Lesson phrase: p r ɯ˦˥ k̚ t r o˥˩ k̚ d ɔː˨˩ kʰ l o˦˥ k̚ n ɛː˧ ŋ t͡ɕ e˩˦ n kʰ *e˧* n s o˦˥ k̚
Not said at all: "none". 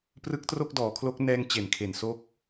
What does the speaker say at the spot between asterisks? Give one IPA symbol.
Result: e˨˩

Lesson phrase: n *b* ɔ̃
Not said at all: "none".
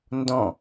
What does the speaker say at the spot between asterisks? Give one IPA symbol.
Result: d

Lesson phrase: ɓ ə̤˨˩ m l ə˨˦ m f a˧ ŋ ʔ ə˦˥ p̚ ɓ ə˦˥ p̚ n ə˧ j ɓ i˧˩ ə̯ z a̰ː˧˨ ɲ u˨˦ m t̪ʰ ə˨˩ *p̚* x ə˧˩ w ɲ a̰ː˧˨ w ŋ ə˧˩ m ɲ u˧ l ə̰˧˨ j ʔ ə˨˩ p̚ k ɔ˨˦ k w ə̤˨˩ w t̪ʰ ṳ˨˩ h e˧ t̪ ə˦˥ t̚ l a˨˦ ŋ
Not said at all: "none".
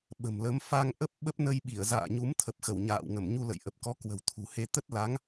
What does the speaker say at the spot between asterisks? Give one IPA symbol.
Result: p̚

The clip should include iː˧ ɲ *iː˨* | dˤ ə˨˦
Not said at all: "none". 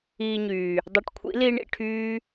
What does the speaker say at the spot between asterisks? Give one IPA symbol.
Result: yː˨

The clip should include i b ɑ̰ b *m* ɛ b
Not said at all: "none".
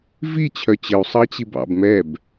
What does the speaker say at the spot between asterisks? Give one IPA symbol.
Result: m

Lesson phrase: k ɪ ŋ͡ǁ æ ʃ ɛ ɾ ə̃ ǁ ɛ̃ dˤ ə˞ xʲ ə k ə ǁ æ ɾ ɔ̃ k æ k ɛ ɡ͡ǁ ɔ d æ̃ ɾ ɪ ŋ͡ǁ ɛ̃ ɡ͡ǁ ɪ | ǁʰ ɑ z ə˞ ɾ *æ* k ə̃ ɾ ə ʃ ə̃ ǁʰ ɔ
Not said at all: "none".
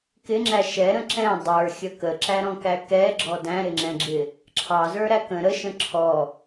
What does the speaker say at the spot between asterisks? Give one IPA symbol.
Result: æ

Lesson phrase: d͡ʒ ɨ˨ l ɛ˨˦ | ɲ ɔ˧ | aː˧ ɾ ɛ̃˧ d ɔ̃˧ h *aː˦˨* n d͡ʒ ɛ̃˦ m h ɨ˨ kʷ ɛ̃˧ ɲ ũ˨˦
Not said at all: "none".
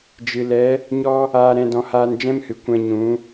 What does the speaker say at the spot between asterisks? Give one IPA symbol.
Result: aː˧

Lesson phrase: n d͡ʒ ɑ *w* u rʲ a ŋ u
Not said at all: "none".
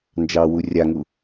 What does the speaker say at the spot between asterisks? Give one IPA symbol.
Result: w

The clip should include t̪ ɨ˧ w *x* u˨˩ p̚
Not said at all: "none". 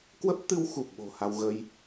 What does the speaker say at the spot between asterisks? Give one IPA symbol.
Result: x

